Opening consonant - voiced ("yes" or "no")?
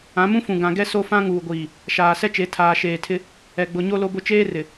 yes